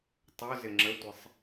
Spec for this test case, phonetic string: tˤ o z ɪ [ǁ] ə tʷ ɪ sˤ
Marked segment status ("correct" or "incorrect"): incorrect